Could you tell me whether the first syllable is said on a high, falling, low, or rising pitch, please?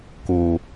low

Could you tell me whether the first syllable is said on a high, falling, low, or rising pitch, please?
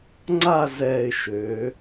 falling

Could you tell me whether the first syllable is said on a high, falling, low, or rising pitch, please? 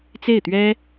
falling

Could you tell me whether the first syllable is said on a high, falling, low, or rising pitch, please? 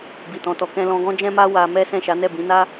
low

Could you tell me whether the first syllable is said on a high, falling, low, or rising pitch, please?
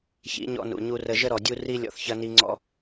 rising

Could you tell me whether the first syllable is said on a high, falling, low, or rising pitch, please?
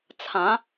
rising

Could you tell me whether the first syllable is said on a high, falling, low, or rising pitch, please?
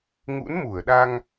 rising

